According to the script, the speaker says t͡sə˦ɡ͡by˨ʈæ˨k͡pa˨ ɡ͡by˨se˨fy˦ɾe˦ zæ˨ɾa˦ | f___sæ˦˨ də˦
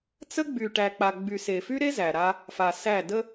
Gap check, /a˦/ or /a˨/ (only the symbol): a˨